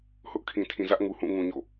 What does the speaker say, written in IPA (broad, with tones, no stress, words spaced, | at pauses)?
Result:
hʊ˦ʔ kʰĩ˨tʰĩ˨zä˦ʔŋu˨ hũ˦˨ŋũ˨ɲo̰˦˨